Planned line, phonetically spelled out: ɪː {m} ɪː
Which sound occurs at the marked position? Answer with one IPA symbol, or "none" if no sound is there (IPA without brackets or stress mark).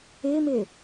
m